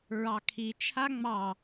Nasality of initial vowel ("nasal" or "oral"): oral